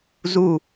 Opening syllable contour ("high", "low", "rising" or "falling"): falling